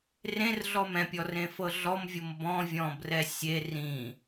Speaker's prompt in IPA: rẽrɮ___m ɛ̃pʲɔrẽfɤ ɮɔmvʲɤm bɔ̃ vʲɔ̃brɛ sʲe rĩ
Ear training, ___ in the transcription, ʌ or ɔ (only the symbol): ɔ